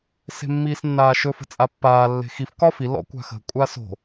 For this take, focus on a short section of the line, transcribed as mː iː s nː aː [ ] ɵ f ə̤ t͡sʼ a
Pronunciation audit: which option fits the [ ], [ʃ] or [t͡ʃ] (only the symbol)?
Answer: ʃ